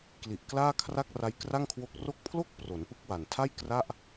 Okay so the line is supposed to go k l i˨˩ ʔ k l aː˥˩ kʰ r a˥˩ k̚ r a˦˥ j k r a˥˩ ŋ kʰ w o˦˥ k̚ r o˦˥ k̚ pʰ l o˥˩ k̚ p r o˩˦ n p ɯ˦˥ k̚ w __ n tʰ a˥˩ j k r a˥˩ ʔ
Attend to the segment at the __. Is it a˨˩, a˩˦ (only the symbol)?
a˨˩